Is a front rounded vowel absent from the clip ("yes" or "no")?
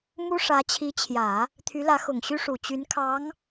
no